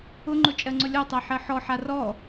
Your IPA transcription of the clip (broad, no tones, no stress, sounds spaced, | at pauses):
ʊ ŋ͡ǃ ʊ t͡ʃʼ ɜ ŋ͡ǀ ʊ lʲ ɔ tˤ æ ħ ɜ ħ ɔ ħ a r ɔ